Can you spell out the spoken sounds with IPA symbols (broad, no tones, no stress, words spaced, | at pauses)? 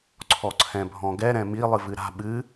ǀʰɔǀʰɛ̃bʱɔ̃ɡɛ ɾɛ̃mi lˠɨvɨɾa̤ ɓɨ